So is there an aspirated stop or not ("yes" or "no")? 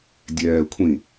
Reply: yes